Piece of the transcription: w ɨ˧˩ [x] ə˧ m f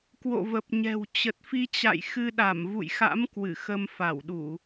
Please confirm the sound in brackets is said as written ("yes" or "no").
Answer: yes